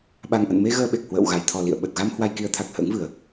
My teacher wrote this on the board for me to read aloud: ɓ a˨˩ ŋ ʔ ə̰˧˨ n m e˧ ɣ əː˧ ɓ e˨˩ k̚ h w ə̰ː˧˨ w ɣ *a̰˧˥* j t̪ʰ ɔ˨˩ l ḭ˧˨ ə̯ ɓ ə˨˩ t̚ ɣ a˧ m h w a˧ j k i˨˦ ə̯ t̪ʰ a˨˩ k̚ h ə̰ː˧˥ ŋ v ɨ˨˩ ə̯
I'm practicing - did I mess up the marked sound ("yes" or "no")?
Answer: yes